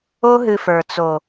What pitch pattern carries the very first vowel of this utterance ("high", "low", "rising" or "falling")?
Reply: high